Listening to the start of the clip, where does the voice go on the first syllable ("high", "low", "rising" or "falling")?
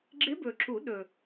rising